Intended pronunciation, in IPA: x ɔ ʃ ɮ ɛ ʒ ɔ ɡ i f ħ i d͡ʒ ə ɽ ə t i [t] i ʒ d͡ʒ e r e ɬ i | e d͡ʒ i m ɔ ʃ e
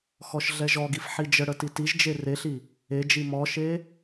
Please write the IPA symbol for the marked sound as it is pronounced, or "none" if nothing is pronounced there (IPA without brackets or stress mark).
t